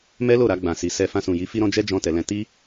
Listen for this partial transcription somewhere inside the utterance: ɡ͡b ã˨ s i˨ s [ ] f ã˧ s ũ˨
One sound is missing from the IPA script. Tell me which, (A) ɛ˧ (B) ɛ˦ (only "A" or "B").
A